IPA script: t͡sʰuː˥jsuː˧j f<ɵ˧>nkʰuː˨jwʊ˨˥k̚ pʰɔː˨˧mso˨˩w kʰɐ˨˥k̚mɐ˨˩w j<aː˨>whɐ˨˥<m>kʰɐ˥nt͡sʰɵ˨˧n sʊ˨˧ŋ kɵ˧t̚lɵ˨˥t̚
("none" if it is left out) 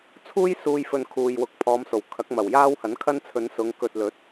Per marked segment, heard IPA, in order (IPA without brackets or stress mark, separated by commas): ɵ˧, aː˥, n